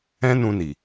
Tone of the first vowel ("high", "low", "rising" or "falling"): high